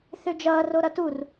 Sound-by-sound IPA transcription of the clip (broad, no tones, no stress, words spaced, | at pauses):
θød͡ʒʌː roɾʌtur